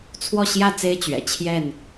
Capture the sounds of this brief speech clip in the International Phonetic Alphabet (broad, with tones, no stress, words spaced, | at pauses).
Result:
t͡sʰwɔ˥˨ɕjä˥˨t͡se˦ɪ̯ t͡ɕɥɛ̰˨˩t͡ɕʰjɛ˥˨n